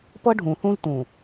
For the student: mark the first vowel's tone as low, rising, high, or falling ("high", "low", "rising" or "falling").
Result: high